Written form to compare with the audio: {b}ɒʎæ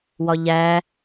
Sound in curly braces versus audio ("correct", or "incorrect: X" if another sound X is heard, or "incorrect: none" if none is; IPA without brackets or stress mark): incorrect: w